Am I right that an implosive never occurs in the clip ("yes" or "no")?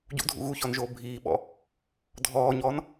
no